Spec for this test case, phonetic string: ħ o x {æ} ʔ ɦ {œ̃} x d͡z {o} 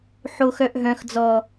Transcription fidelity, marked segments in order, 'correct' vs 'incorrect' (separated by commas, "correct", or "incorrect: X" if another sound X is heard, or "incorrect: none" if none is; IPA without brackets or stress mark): incorrect: œ, correct, incorrect: ɔ